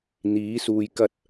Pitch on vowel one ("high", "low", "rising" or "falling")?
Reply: rising